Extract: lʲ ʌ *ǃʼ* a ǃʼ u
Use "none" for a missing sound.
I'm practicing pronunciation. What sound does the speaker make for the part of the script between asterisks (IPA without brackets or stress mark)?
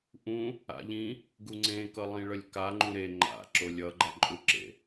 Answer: ɡ͡ǃ